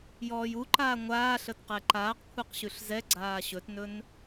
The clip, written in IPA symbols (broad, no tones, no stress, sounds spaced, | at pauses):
j ɔː j u ǃ aː ŋʷ aː ɬ ə t q ɛ ǃ aː q kʷʰ e q ɕ ʉ ɬ z ɛ ɡ͡ǀ aː ɕ ɵ t n ɵ n